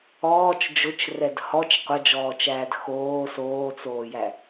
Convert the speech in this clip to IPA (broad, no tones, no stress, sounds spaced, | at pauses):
ɔː t͡ʃ d͡ʒ ʊ t͡ʃ r ɛ d h ɔ t͡ʃ qʷ ɐ d͡ʒ ɔː t͡ʃ æː d x oː s oː t͡s oː j æ